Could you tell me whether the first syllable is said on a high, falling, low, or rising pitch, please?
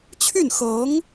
falling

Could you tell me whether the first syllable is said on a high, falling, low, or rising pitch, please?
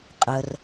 low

